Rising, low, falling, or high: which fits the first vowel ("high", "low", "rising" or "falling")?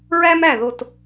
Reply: high